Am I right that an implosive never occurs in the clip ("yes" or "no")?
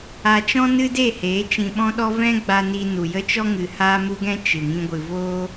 no